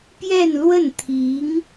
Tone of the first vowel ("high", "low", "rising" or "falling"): falling